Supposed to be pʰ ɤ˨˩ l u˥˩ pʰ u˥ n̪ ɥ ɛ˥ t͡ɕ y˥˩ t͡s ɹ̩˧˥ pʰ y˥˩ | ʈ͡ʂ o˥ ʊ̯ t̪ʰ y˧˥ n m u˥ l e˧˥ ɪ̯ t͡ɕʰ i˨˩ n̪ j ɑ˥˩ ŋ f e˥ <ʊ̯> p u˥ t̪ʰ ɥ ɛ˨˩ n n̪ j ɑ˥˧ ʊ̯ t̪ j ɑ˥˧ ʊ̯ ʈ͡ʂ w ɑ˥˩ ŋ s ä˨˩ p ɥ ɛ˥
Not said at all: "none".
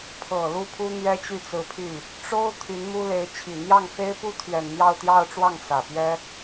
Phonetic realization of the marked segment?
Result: ɪ̯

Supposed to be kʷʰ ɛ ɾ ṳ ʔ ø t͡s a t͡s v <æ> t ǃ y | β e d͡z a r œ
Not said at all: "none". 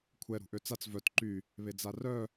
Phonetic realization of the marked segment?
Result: œ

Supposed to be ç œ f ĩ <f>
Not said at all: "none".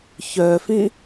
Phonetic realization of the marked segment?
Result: none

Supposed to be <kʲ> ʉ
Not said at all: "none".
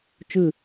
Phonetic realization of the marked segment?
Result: t͡ʃ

